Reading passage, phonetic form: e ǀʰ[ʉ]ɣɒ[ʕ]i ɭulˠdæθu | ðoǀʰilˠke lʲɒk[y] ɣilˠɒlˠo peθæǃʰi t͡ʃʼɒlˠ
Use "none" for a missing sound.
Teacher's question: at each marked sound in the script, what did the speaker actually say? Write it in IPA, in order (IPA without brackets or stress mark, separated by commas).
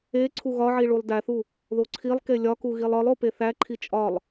u, ʕ, u